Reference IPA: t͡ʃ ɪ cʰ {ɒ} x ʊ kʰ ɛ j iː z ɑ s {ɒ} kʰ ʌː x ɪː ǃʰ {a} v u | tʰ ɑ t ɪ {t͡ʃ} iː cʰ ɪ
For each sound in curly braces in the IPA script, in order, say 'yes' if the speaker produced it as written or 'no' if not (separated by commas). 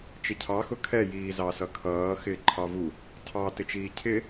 no, no, no, yes